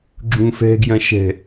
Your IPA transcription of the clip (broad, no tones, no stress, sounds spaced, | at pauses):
ɡ͡ǁ ũ f ɛ̤ ɡ j ɐ̃ ʃ ɛ̤